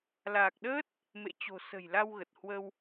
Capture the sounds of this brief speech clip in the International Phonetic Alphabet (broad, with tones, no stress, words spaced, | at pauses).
laː˨˩k̚ɗəː˦˥t̚ | mḛ˧˨t͡ɕo̤˨˩ sə̤˨˩jla˧wɣə˨˩t̚ hwə˧w